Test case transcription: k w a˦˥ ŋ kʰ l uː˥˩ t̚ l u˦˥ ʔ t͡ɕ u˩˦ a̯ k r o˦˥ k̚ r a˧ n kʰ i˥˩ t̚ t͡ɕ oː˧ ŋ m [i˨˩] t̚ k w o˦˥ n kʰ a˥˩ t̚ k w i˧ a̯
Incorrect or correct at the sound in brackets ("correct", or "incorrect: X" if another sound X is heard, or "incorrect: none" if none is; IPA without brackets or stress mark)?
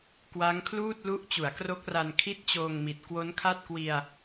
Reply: correct